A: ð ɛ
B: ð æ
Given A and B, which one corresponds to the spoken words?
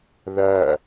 B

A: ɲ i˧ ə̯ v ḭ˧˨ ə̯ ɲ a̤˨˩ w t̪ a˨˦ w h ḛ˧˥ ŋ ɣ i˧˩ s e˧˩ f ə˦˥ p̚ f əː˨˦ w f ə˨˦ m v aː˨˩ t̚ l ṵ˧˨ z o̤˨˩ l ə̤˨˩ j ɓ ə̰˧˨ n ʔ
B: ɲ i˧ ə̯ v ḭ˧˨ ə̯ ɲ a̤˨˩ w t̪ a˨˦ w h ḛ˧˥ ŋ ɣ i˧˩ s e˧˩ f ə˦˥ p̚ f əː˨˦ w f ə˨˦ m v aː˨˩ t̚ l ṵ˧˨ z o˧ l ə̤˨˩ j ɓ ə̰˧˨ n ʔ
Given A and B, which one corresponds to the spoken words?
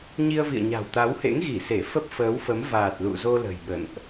B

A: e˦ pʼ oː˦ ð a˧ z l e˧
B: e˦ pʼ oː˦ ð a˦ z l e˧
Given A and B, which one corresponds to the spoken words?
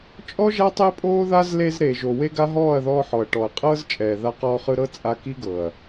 B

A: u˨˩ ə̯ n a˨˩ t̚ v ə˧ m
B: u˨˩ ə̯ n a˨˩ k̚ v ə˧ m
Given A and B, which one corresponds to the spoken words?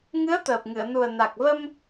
B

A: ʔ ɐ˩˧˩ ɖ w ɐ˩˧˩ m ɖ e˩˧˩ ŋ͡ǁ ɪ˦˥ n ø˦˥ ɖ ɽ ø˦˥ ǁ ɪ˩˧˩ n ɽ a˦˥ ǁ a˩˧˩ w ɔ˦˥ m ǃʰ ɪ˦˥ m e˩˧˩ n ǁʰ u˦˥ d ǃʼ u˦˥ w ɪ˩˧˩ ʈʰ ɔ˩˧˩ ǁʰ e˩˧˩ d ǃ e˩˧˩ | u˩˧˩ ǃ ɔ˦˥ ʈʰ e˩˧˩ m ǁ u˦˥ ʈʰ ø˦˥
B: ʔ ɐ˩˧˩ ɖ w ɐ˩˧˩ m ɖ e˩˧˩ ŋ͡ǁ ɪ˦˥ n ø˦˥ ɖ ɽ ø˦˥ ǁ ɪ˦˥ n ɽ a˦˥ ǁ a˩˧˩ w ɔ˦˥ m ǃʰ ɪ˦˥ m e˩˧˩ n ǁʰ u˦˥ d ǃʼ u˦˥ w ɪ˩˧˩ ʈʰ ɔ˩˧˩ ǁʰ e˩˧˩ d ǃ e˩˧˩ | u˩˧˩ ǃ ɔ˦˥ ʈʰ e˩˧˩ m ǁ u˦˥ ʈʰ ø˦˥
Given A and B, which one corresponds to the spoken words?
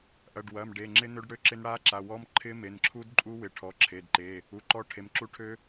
B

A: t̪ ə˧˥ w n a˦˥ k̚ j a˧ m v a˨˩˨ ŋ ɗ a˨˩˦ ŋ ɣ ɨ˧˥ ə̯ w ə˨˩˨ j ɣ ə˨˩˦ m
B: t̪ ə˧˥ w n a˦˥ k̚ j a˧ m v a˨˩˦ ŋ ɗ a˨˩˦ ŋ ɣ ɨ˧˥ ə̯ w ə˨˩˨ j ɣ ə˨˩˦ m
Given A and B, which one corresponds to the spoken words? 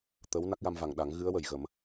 A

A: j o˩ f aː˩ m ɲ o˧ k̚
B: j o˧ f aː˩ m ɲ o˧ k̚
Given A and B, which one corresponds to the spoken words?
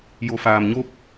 A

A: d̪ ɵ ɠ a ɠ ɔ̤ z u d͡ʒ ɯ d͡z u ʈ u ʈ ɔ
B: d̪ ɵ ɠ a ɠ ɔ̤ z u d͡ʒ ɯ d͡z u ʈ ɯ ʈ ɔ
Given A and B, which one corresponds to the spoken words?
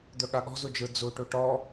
A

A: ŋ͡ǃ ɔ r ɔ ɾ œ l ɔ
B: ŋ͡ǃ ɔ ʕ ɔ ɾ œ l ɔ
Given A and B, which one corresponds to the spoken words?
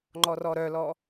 A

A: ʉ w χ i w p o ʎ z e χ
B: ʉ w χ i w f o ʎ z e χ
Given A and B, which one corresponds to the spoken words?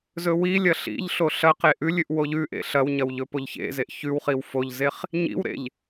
B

